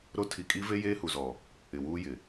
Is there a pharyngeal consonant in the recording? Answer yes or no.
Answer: no